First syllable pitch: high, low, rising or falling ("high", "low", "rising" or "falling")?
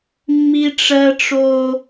high